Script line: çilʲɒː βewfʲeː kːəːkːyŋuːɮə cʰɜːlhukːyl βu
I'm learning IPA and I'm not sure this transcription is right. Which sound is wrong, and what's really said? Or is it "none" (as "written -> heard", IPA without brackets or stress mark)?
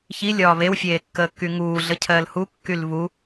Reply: none